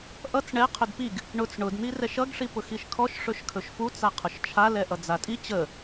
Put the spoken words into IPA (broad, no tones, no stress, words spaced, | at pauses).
ʔʌt͡s ɳɛ qʰɵdpiɡ | ɳʊt͡s ɳʊdn̪i rɛʃʌɡʂi pʊxiʃkʰɔʃ ʂɵʃkʰɵʃfut͡sa qʰʊʃt͡ʃʰalɛʔʌ d͡zatʼi t͡ɕə